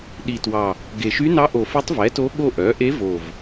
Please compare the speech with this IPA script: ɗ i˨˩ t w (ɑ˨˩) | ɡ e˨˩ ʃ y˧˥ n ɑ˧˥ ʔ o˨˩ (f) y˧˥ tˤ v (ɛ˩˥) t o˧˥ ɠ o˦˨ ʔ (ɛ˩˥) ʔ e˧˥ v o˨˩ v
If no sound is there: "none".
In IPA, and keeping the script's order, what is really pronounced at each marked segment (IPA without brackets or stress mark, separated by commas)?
ɑ˨˩, f, ɛ˩˥, œ˩˥